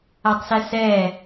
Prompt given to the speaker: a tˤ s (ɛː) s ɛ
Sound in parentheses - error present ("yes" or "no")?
yes